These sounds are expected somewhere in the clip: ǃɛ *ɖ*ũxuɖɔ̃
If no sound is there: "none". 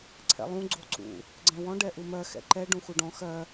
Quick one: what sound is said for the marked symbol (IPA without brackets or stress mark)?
ɖ